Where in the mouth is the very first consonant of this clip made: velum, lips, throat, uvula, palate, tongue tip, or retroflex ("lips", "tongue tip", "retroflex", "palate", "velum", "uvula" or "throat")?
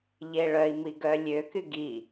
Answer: palate